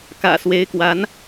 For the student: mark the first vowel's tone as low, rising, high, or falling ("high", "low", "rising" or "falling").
low